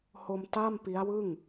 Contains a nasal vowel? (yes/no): no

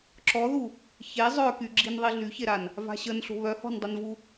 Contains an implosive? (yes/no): no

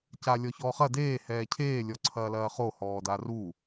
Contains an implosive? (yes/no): no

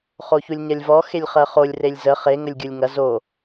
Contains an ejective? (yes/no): no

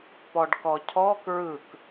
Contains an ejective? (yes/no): no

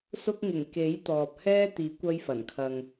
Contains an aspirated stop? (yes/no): yes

